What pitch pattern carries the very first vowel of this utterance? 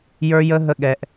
high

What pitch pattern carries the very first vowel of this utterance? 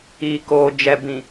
low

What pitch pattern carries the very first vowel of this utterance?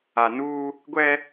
low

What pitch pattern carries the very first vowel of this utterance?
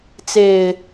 low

